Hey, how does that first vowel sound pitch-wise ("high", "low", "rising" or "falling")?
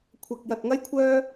low